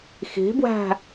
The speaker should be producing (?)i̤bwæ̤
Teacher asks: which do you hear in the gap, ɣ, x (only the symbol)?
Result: x